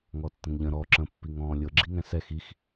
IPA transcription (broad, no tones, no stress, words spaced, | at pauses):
ŋɔtːə̃ŋʎə̃ ɾɔ ǁə̃ pːiŋɔ̃ːlʲɤ ɡ͡ǁiŋɛ̃sɛx ix